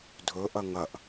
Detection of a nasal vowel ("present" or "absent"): absent